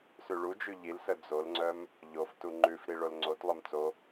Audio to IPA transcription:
sʉɭud͡ʒʉ ʎilsə d͡zolŋ͡ǀœm | ʎoftu ŋ͡ǃʉfɾi ɭolŋ͡ǀotlˠœm t͡so

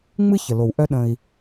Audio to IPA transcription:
ŋ͡mɨ˦çə˨lo˨wʔœ˦ ɗə̃˦i̯

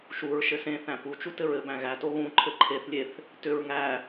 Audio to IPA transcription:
ʃuɹʃɘ sẽθæ̃ put͡ʃu tɘɹɘbæ̃ ɣæto ɣũ ǃʰɘǃʰeθlʲeθ | tʏɹ ŋæ

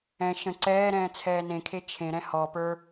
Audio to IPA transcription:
ɛ̃ ʃə̃ ǀɛːɾɛ̃ː t͡sʰɛːnẽkʰe t͡ʃʰẽɾɛ̃ hɔpə˞

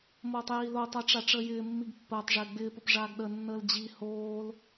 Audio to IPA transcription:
moːtˤjiːlotˤa ʈ͡ʂaʈ͡ʂəːjɪːmːiɡ pːəːtˤʐɪː ɡ͡bɪːpəp ʐaːɡɗənːəːl d͡ʑi hoːl

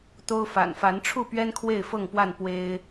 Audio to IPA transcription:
t̪o˦ʊ̯fa̰˨˩n fa˨˦nʈ͡ʂʰu˥˨pɥɛ˦n kʰwe˥˨ɪ̯fɤ˥˨ŋpwa˥˨n pwe˦ɪ̯

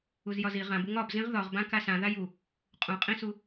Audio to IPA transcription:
uzjɒzi ʁãbuŋ ɒbzĩʁ ðɒʁbã kasã ðaju | qʼũqʼĩsu

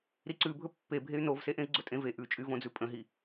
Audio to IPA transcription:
ɾiǀʉbʱɵ pːebʱey̯ novse ʔẽi̯ɡ͡ǀɵtʼẽve ʔʉt͡ʃʼyvõd͡zʉ pʼə̃ɦi

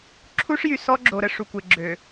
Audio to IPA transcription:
ǁʰu˦ʂjy˨sɔ˦ɡ͡ǁo˨ ɾə˦ʂu˨kʷe˨ɡ͡ǁø˨

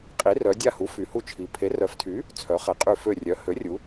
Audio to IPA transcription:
qʼi˩˥rœ˩˧ dʲa˧˩hu˩˥ fy˩˧hu˧˩t͡ʃʰi˩˧ pʰe˩˥rœ˩˥ftʰy˩˥ | t͡sʰœ˩˥χɛ˩˥qʼy˧˩ fø˧˩ rʲœ˩˥ hø˩˥rʲu˩˧

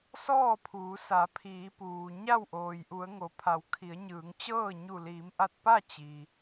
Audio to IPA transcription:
sɔː˥˨pʰuː˩˧sa˩˧ pʰiː˩˧puː˩ ɲa˥˨wʔoː˩jʔu˩˧ə̯ŋo˩ pʰa˩˧wkʰi˩˧ə̯ɲɯː˩˧ŋt͡ɕɤː˥˨ ɲu˧˩liː˩˧mʔa˧t̚pa˥˨ t͡ɕi˩

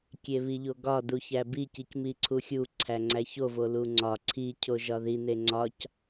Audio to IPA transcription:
kʲeβiʎoɡɒ duçæbi cicmiǀʰuxʲu ǀʰæŋ͡ǀæço voluŋ͡ǀɒ ǀʰi cʰoʒɒði neŋ͡ǀɒc

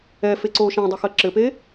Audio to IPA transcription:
ɛfeǀoː ʃãdˤɘxɜ ǁɘpe

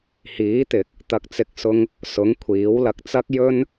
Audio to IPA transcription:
hiː˨˥t̪ɪ˨˥k̚ | t̪ɐ˨k̚t͡sɪ˨˥k̚sʊ˧ŋ | sʊ˨˥ŋkʷʰiː˨˥wlɐ˧k̚t͡sɐ˥k̚ jɵ˥n

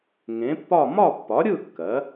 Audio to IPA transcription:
ŋẽ˩˥pːɒ˥˨ mɒ˥˨pːɒ˩˥ɾʲɯ˥˨ kːɜ˩˥

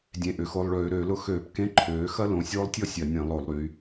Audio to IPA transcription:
dʲẽ˩˧˩ʔʏ˩˧ xo˩˧˩lˠɭøː˧˩˧ɾøː˧˩˧lʊ˧˥˧ xøː˧˩˧pkẽ˧˥˧ǃʰøː˩˧ xɐ˥lõ˩˧˩ sʲoː˥lˠtʲɔ˥ sʲɐ˧˩˧nʲẽ˧˩˧ lˠo˧˩˧lˠɾy˩˧

